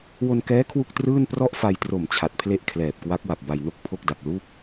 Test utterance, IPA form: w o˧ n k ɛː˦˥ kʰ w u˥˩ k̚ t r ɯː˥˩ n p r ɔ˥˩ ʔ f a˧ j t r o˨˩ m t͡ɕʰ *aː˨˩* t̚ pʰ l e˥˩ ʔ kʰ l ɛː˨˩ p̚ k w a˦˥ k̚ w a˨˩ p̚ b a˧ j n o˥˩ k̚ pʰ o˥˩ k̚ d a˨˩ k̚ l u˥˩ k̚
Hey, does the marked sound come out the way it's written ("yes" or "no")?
no